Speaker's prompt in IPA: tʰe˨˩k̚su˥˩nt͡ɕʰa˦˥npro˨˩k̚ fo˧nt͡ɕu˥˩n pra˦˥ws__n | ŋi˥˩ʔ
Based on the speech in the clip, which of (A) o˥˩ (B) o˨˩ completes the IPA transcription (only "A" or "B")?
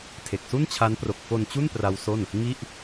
A